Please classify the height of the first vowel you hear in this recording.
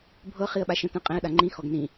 mid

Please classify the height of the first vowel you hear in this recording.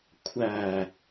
low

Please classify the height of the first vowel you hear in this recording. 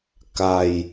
low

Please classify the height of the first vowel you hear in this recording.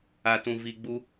low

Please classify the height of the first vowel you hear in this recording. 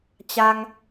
low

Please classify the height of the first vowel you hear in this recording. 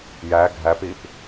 low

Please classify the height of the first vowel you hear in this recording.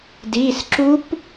high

